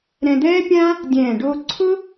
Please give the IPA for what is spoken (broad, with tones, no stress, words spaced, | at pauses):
ɾɛ̃˧d̪ɛː˥pʲãː˥ | dʲɛ̃ː˧˩ɖo˥˧ ǀʰʊ˥